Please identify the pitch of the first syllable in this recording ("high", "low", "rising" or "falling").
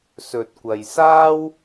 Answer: low